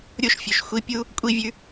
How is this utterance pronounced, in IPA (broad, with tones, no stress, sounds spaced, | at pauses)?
ɾʲ o˦ ʃ fʲ ɵ˨ ʃ xʷ i˧ pʲ u˦ | kʷʼ i˦ vʲ ʉ˦